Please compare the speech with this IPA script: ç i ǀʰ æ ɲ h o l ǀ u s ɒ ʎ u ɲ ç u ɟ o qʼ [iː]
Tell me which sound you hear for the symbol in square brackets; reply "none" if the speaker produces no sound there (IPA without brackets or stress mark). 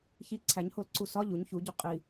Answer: i